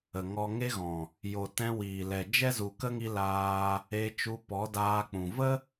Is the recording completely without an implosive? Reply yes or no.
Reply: yes